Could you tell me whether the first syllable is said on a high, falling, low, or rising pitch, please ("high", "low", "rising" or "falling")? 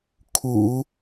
low